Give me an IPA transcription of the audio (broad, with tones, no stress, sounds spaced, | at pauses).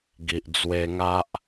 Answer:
ɡ i˨ ʔ d͡z w e˧ ŋ a˦ ʔ